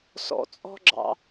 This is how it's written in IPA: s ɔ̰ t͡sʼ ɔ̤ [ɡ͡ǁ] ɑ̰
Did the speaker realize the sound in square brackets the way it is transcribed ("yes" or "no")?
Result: yes